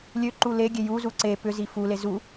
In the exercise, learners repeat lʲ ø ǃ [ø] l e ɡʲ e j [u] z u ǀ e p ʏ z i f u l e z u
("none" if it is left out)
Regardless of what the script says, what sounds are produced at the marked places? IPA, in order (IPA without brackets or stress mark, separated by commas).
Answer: u, u